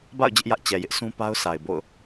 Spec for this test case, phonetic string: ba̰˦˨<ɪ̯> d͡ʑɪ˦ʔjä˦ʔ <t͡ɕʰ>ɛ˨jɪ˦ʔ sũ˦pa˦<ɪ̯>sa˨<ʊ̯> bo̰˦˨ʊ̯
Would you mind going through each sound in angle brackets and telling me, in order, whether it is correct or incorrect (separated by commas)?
incorrect, incorrect, incorrect, incorrect